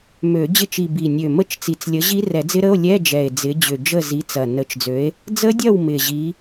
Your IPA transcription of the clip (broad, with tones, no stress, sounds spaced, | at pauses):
m ø˨˩˦ d͡ʑ ɪ˧˥˧ t͡ʃ i˨˩ b i˨˩ nʲ ø˨˩ m ə˥˨ t͡ʃ t͡s i˨˩˦ t͡s lʲ ə˨˥ ʑ i˦˥ r ɛ˨˩˦ d͡z ɪ˦˥ ɾ ə˧˥˧ o̯ lʲ ɛ˧˥˧ d͡ʒ ɛ˨˩ e̯ d͡z ɪ˨˥ d͡ʑ ʏ˨˩ d͡ʒ ə˥˨ z i˨˥ t͡s ɐ˨˩ n ə˨˥ t͡ʃ d͡z ø˨˥ e̯ | d͡z ə˦˥ dʲ ɐ˥˨ w m ɪ˨˩ ʑ i˨˥